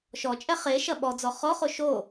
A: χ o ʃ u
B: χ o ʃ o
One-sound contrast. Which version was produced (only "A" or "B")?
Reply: B